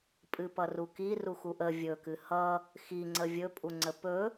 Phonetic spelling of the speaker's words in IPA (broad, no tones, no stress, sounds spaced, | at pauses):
pʼ ɨ p ʌ r u k i r u x u ʔ ə vʲ ɵ k ɨ h ʌ | x i ŋ͡ǀ ə vʲ ɵ pʼ u ŋ͡ǀ ə p ɵ